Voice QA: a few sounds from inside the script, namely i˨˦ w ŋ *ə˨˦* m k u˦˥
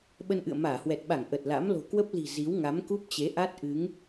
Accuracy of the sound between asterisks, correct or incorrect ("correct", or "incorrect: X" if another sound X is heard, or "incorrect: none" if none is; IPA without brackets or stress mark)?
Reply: incorrect: a˨˦